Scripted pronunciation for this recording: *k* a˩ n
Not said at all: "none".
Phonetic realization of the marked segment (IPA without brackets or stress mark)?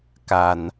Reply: k